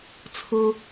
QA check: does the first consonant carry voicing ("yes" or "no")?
no